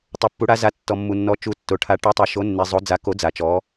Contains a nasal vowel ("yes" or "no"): no